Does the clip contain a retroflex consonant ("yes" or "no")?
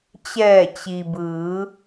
no